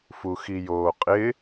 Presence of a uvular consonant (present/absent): present